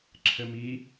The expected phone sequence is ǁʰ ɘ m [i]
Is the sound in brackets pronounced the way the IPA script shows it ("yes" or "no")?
yes